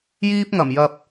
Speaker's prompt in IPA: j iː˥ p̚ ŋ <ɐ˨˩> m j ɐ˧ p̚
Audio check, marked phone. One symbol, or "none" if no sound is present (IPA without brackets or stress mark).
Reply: ɐ˨˩